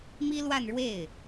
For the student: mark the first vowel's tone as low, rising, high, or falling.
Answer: high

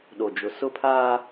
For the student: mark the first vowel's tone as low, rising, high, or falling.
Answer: low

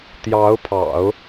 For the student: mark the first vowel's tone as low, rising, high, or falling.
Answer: rising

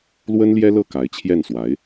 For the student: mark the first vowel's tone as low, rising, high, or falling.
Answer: high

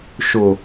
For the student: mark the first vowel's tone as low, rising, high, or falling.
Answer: low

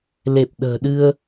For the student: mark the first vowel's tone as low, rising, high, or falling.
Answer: low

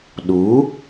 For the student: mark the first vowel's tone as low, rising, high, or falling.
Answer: rising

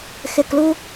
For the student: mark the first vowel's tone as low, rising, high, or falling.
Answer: low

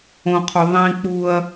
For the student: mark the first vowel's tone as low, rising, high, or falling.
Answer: low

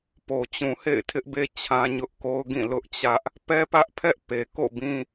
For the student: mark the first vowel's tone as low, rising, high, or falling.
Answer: low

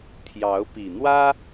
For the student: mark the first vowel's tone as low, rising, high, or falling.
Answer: rising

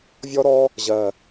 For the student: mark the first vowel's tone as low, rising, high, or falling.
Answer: high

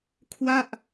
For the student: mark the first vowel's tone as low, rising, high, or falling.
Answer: falling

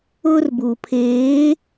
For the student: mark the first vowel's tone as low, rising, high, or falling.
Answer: high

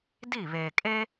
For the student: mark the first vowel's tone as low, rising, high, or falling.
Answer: falling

